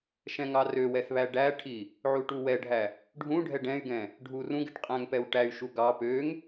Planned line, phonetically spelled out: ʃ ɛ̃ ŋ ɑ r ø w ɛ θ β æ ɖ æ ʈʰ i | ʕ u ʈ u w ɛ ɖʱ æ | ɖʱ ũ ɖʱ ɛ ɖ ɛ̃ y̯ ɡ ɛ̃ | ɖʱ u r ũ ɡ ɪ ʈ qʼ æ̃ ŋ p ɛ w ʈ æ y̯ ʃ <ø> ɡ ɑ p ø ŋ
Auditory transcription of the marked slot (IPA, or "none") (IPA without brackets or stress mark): u